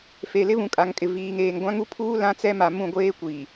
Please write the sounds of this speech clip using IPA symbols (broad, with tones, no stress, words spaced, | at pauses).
fe˨ lɪ˦βũ˨ kʼa˨ŋkʼɪ˨viː˨ŋ eː˨ŋɡʷã˦ ŋu˦pʰuː˦ lã˦t͡sɛ˦ ma˨mũ˦˨ɡʷeː˦kʷiː˨